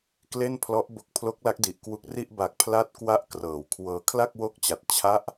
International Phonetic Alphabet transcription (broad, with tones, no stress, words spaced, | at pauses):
kle˥˩npʰlɔ˦˥ʔ bo˦˥k̚pʰlo˦˥k̚la˦˥k̚di˨˩ʔ kwu˦˥k̚ri˥˩ʔ ba˨˩k̚ pʰla˥˩t̚kwa˥˩ʔkrɤː˩˦wkʰwɤː˧ kʰla˥˩k̚wo˦˥k̚t͡ɕa˨˩t̚ t͡ɕʰa˦˥ʔ